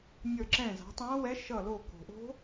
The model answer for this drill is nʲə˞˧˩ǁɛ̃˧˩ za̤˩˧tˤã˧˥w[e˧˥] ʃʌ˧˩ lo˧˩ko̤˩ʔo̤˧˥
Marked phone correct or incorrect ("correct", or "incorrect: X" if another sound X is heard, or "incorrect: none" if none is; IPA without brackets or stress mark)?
incorrect: ɛ˧˥